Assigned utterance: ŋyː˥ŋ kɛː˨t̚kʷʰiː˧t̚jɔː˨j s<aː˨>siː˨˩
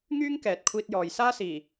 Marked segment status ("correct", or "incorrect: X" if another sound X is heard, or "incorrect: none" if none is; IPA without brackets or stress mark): incorrect: aː˥